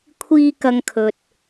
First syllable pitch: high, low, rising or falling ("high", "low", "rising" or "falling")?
high